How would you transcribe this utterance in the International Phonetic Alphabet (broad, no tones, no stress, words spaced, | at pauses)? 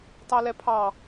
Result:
tɑlɛpʰɑ